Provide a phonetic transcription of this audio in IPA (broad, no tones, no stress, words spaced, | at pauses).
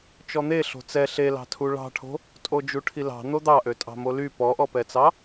t͡ʃɔn̪e ɬo̤t͡sɛ ɬelɑ̤tʰu ɭɑ̤ʈʰo̤ | tʼod͡ʒuʈʰilɑ̤ n̪od̪ɑʔø tʼɑ̤moly pɔʔɔpɛt͡sɑ